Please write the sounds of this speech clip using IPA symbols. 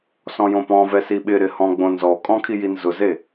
sɔ̃jõpɔ̃vɛ siɓɪɾɪ hɔ̃ɡ͡bõnzɔkʼɔ̃ kʰijinzʊze

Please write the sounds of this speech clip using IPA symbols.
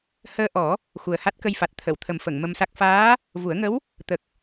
həː˧ʔɔ˨˩˦ | xu˨˩ə̯ha˦˥t̚kə˧jfa˨˩t̚ t̪ʰə˨˩˨wt̪ʰə˨˩mfə˨˩˨ŋ mə˧msa˦˥k̚ faː˧˥ | vu˨˩˦ə̯ŋə˧˥w | t̪ə˨˩k̚

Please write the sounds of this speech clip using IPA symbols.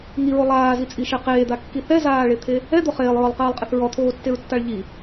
ŋiɹo lˠaːzit͡sʼiʃe qeːd̪akːi θɛzaːɭet̪ʰe | ɛd̪o χeːlˠɹɔlˠqeːlˠqʼɪθ ɹɔt̪ʰoːtːeɹtːaɭ ʎi

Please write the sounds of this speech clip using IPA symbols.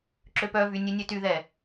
ǁøpœvy nʲønʲøtyðɛ

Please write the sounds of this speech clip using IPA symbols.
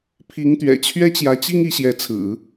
pʰi˧˥ŋt̪ɥɛ̰˨˩ t͡ɕʰɥɛ˥t͡ɕjä˧˥t͡ɕi˥ŋ i˧˥ɕjɛ˧˥t͡sʰɹ̩˨˩˦

